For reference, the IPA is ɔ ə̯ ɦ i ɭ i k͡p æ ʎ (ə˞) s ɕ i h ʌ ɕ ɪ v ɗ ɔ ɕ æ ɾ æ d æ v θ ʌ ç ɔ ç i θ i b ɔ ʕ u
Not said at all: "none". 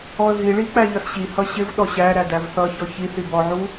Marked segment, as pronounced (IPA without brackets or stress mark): ʌ